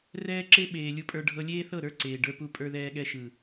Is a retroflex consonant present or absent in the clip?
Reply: present